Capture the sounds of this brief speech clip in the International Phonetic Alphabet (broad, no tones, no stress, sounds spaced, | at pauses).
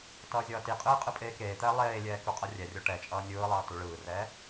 t ʌː zʲ ʌː t i qʼ ɯː qʼ ɯ pʼ eː k eː t̪ ɛː lˠ eː lʲ ɛː k u qʼ ʌ rʲ ɛ rʲ o ʈ ɛ t͡ʃʼ ʌː nʲ ɯː lˠ ʌː t u ɭ ɯː r ɛː